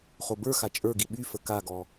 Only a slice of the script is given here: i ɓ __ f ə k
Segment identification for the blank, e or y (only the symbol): y